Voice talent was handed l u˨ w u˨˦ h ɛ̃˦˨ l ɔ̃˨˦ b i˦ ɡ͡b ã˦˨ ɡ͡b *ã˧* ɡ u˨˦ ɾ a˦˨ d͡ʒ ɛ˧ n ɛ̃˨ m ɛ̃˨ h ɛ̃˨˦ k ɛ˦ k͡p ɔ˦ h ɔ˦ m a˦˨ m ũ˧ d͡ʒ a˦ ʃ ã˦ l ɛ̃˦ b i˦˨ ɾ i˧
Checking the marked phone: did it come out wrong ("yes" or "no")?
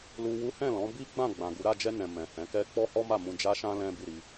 yes